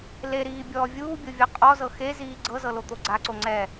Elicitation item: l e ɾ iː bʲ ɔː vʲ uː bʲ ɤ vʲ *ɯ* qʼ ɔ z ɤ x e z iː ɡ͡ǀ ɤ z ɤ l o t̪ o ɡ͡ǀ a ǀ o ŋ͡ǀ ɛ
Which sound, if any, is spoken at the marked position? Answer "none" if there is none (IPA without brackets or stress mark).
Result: ɤ